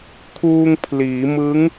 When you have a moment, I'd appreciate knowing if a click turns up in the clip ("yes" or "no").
no